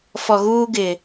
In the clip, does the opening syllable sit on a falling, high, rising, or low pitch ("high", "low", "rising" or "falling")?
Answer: low